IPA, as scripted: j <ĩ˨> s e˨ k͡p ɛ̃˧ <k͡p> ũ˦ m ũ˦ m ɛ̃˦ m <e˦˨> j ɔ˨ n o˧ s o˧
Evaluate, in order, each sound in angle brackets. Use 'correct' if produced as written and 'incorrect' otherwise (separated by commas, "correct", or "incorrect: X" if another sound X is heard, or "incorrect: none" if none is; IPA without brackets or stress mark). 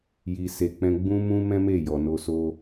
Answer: incorrect: i˨, incorrect: ɡ͡b, correct